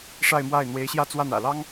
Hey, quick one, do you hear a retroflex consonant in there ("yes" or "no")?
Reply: yes